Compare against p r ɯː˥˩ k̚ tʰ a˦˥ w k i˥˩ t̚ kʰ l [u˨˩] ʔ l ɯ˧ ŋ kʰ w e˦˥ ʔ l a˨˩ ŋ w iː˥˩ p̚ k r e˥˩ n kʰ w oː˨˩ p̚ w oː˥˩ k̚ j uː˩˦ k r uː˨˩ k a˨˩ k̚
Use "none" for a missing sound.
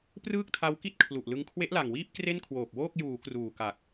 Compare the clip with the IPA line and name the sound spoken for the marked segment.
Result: u˨˩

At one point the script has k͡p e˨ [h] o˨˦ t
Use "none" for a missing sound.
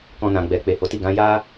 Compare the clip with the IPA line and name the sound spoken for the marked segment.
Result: h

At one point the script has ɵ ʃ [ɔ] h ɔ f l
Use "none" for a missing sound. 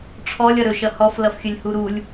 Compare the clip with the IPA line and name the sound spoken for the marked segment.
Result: ʌ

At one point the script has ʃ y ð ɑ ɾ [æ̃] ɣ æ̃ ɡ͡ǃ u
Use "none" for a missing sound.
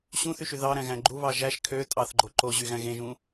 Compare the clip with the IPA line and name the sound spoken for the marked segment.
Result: æ̃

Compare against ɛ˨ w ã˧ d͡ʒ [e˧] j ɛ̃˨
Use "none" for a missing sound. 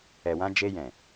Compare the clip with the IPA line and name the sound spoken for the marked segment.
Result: e˧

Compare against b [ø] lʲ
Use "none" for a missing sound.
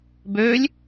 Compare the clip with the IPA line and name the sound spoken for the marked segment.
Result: ø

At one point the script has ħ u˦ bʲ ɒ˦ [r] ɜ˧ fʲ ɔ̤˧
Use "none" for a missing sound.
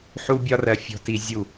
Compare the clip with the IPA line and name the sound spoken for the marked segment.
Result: r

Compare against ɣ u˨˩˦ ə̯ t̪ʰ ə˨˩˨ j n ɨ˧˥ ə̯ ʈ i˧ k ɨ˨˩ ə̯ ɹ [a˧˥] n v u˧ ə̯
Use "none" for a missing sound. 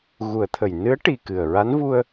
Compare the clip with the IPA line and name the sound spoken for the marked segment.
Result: a˧˥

